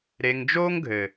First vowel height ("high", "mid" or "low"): mid